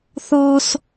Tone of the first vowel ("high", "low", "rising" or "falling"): high